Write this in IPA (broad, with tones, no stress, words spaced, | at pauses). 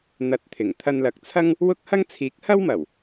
n̪ɐ˨˥t̚t̪ʰɪ˨˩ŋ t̪ʰɐ˧nlɐ˨˥k̚t͡sʰɐ˥ŋ | wʊ˥k̚ hɐ˥ŋ t͡sʰiː˨˥k̚hɐ˥wmɐ˨˩w